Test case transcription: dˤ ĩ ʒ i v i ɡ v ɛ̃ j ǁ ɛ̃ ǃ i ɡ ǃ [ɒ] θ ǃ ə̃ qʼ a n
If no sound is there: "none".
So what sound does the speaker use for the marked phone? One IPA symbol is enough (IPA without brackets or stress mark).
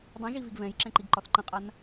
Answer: ɒ